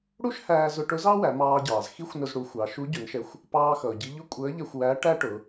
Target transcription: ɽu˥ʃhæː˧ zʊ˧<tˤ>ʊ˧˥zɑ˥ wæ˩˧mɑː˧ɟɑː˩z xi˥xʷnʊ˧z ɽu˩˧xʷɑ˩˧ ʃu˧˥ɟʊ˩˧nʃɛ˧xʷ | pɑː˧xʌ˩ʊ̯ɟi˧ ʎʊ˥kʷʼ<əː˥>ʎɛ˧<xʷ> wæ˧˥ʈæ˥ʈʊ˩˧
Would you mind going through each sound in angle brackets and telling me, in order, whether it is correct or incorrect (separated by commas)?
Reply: incorrect, incorrect, correct